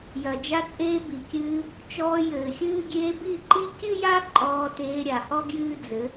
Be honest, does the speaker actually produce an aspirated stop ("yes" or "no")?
no